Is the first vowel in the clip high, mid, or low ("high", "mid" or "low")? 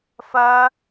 low